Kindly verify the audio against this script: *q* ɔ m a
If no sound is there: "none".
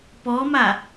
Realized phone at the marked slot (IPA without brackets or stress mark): p